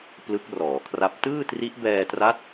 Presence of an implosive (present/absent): absent